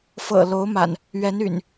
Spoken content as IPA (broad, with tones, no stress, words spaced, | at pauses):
fɤ̰˨˩lo˨˦ʊ̯ma̰˨˩n | ɥɛ˨˦ny̰˨˩n